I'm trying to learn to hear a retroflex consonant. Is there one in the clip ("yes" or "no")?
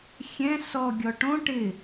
yes